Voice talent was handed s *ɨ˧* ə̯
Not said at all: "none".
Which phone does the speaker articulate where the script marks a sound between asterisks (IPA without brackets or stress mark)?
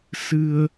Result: ɨ˧